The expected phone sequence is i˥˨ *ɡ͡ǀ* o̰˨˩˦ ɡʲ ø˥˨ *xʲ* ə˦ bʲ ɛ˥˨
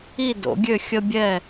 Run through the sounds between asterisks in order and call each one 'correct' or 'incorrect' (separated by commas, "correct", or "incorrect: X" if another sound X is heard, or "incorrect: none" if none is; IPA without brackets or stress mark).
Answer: incorrect: d, correct